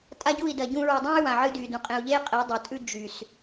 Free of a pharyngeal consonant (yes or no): no